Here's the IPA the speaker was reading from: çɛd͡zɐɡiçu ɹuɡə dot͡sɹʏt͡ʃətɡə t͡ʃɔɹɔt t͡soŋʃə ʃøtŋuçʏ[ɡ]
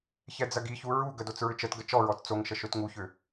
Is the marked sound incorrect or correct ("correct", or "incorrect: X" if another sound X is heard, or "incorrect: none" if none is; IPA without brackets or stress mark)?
incorrect: none